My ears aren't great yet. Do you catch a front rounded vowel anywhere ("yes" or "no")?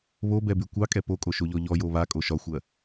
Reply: yes